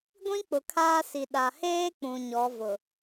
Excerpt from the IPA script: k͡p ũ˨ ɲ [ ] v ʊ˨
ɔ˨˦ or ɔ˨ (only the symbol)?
ɔ˨˦